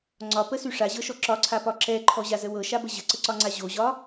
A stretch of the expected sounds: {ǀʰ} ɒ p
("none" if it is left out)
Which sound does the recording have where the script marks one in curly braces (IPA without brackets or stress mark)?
ŋ͡ǀ